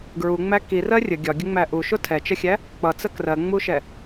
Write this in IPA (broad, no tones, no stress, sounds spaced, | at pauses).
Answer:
ɡ ɹ u ŋ͡m æ k i r ɜ rʲ ə ɡʲ ɒ ɡʲ ə ŋ͡m æ ʔ u ʃ ʊ tʰ ɛ t͡ʃ ə xʲ æ | k͡p ʌ t͡s ə k r ɜ ŋ͡m u ʃ ɛ